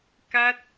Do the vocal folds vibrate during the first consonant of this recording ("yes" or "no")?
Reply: no